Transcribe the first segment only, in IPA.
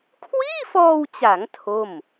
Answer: kʰ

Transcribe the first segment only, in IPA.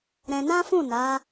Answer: ɾ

